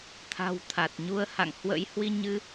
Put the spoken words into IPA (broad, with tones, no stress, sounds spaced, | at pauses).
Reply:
t̪ʰ a̤˨˩ w t̪ʰ a˨˩ t̚ ɲ u˧ ə̯ h a̰˧˨ ŋ h w ə̰˧˥ j h w i˧ ɲ ɨ˧